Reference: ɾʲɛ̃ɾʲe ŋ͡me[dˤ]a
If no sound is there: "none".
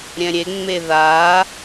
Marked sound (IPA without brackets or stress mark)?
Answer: ð